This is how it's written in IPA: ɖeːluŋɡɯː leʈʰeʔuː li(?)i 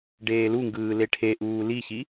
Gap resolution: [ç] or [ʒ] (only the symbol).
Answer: ç